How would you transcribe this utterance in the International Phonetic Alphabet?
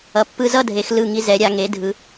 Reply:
ʌ˩˧ pː ɯ˧ z ʌ˥˧ dʱ e˩˧ x l ɯ˧˩ ŋ i˧ z ɛ˩˧ ɾʲ a˩˧ ŋ e˩˧ dʱ ɯ˩˧

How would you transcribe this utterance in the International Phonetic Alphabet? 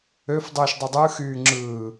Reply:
ø f dˤ ɯː ʃ dˤ ɯ dˤ ɯ x yː ŋ͡ǁ ɯː

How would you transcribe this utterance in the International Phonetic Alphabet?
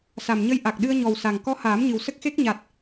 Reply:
s a˨˩ m ɲ ə˧ j ʔ a˨˩ k̚ ɗ ɨ˧ ə̯ ɲ ɔ˨˩ w s a˨˩ ŋ k ɔ˧ h aː˨˩˦ m ɲ ɨ˨˩ w s ə˦˥ k̚ x e˦˥ k̚ ɲ a˨˩ t̚

